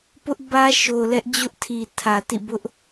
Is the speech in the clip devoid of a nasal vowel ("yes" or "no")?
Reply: yes